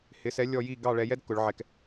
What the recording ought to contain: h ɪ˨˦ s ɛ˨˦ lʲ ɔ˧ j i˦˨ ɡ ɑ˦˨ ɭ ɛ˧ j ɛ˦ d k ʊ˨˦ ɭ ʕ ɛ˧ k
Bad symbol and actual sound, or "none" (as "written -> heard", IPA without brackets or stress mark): none